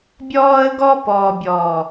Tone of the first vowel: high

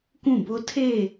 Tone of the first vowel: falling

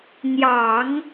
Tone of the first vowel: low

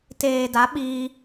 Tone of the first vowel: low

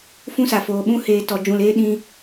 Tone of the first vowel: high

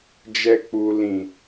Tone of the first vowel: low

